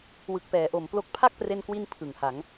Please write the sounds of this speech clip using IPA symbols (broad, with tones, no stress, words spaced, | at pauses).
wɯ˨˩k̚pɛː˩˦ʔo˨˩mplo˦˥k̚ pʰa˥˩k̚pre˧nkwi˧n pʰɯ˨˩ŋha˩˦ŋ